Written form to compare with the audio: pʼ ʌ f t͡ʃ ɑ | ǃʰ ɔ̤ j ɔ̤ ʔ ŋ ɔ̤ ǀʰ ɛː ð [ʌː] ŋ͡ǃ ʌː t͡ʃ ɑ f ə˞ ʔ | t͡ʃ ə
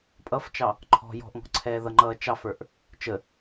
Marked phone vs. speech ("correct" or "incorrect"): incorrect